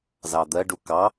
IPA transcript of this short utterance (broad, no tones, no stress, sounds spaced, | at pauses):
z ɑ d̪ ɜ ɖ u k ɑ